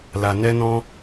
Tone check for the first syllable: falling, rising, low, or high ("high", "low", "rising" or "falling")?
low